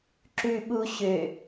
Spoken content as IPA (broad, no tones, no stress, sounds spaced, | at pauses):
ǁ ʉ ɓ u ɕ ø